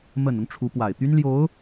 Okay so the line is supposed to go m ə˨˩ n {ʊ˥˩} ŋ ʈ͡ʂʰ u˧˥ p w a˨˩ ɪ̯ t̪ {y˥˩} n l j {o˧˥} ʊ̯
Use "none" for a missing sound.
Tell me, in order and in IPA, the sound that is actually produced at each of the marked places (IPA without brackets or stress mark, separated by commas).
ʊ˦, y˥, o˧˥